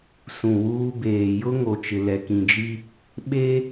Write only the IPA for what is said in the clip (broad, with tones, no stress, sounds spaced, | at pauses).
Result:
s ũ˨ w uː˦ b eː˨ j ʊ˦ ŋ o˨ t͡ʃ ɪ˨ l ɛ˨ k ĩ˨ d͡ʒ i˦ | ɓ e˦